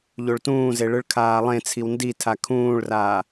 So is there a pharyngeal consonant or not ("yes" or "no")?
no